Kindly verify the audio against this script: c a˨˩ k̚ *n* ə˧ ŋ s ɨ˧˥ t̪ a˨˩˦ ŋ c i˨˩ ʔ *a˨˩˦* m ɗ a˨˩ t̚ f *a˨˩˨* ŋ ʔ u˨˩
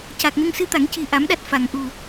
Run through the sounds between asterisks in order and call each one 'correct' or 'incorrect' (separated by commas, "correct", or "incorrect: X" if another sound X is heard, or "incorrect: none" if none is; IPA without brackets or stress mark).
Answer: correct, correct, correct